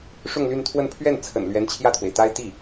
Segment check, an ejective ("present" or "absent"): absent